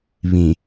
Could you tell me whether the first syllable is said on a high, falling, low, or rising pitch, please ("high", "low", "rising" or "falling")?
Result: low